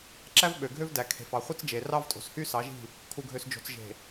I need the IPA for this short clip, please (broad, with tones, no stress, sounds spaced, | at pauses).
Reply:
ǁ æ˦ v ɓ ø˨ ɡʱ ø˦ v d æ˨ kʰ e̤˨ f ɑ˨ χʷ ɯ˦ t͡s d͡ʒ e˨ r ɑ˦ v tʼ o̤˨ s h y˦ s ɑ˨˦ ʒ i̤˦˨ | kʰ u˨ ɡʱ ø˨ s d͡ʒ o̤˨ t͡s ʒ e̤˨